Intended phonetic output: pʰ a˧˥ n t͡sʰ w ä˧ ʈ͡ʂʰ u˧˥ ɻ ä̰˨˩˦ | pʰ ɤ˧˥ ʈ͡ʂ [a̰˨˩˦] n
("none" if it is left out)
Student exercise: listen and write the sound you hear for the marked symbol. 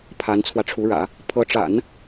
a̰˨˩˦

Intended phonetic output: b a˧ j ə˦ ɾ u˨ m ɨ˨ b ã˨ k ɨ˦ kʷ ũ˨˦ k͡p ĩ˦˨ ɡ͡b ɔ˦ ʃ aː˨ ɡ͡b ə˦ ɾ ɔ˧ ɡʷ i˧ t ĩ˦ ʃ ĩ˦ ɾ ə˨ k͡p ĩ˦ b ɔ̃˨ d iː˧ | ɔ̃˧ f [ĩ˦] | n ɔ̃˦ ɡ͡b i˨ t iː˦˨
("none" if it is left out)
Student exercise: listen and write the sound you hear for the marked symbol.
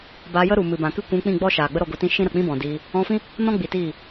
ĩ˦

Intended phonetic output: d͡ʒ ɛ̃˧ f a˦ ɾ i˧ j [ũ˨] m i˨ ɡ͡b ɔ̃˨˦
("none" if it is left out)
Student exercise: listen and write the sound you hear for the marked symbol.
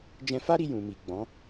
ũ˨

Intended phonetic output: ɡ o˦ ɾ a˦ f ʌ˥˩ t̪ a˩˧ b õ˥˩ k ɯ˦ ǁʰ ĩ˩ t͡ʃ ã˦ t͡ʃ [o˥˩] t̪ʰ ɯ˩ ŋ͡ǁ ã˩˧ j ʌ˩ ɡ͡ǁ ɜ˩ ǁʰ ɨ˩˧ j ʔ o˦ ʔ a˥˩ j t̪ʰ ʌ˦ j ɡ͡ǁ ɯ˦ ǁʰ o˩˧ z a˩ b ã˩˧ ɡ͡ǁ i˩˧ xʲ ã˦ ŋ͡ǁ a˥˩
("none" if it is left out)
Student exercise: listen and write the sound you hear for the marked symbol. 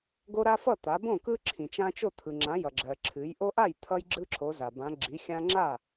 o˥˩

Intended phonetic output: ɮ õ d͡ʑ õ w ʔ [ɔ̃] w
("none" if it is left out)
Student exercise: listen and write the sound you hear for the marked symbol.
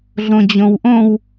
õ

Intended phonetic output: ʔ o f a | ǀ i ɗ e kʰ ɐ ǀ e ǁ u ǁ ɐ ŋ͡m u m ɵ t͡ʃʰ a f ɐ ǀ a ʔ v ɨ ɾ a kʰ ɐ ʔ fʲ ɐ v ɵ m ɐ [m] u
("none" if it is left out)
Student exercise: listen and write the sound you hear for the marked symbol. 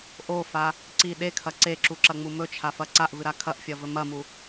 m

